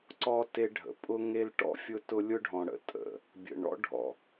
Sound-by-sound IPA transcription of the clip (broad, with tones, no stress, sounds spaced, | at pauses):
ǀ ɔ˦ t e˦ ɖʱ ə̰˨ pʼ ʊ˦ ŋ e˦ l ʈ ɔ̰˦ fʲ ʊ˦ t ʊ˦ lʲ ʊ˦ ɖʱ ɔ̃˨ ɽ ə̰˦ tʼ ə̰˨ | bʲ ə̰˨ ɳ ɔ̰˦ ɖʱ ɔ̰˨